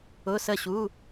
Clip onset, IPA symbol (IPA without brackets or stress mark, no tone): ʊ